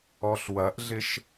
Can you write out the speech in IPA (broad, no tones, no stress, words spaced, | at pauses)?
ɔɬwɐʔɮɪʃ